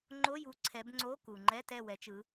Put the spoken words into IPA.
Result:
ŋ͡ǃ o˧˥˧ j u˨˦ ǀʰ ɛ˨˦ b ŋ͡ǀ o˧˥˧ k u˩ ŋ͡ǃ ɛ˧˥˧ t ɛ˦˨ w ɛ˨˦ t͡ʃ ɯ˨˦

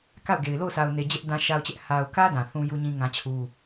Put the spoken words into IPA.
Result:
k a˦˨ ʊ̯ ɡ e˨ ɪ̯ l o˦˨ ʊ̯ s a˨ ʊ̯ n e˨ d͡ʑ ɛ˦ ʔ d ã˦ ʃ a˦ ʊ̯ t͡ɕ ɛ˦ ʔ h a˨ ʊ̯ k ä˦ d ã˨ θ ũ˦ j u˦ ɲ ĩ˦ ŋ ã˦ t͡ɕʰ u˦

